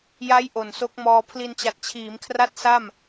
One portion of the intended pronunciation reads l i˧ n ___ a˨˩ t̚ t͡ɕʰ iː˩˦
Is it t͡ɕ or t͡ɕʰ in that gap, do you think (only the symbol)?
t͡ɕ